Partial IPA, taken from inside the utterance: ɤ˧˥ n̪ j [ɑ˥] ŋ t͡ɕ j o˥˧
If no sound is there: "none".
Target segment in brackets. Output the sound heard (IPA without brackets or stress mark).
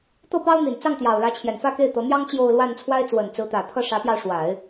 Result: ɑ˥